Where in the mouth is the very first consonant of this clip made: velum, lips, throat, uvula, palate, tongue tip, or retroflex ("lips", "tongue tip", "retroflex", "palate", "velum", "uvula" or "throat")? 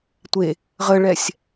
tongue tip